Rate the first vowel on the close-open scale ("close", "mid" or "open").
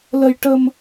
mid